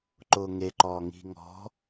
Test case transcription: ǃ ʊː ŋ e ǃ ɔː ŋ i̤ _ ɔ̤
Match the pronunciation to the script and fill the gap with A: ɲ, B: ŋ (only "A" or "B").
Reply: B